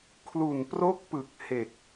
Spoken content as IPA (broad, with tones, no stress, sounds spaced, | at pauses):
kʰ l u˨˩ n p r o˦˥ k̚ p ɯ˨˩ k̚ h e˨˩ k̚